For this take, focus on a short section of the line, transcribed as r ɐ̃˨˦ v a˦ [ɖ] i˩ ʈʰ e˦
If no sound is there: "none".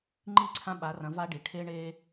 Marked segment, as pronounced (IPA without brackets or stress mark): ɖ